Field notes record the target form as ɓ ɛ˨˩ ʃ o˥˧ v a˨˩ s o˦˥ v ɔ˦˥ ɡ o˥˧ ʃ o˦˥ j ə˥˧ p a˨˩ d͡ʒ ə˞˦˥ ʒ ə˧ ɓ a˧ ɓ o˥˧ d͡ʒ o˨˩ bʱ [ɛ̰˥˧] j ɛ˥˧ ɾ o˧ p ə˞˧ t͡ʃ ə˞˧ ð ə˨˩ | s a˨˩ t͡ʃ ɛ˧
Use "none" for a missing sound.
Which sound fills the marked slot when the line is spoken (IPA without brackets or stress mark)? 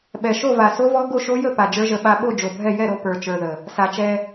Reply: ɛ˥˧